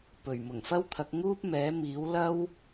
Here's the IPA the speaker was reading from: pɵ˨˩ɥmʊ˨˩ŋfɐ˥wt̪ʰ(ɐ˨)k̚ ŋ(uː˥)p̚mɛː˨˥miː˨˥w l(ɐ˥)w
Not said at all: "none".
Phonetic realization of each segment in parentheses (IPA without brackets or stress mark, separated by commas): ɐ˨˥, uː˥, ɐ˥